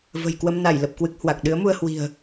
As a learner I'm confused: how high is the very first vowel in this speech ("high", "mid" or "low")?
mid